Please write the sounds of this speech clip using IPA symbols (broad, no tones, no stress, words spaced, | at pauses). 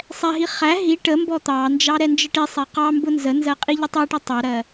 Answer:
sˤɛɦi χæ ɦi ʈəmbɔ t̪ɑnd͡ʒɑ ɾɛnd͡ʒəʈisˤɛ qɑ mbʊnzənzɜ qʼiʎʊtˤæʈɛ tˤæɾɜ